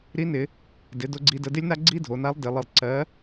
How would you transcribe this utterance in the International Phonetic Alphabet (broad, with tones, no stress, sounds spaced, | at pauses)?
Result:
ɾ i˧˥ n ɪ˩˧ | d ɪ˩˧ d o˧ ɡ͡ǀ i˧ d ə˧ d ɪ˥ lʲ n a˥ ɡ͡ǀ i˥ dʱ o˩˧ n a˧˥ lˠ d ɪ˩˧ lˠ ɘ˧ lˠ ǀ ɜ˧˥